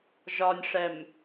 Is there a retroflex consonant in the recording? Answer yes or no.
yes